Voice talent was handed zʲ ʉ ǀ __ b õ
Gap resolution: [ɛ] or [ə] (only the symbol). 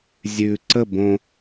ə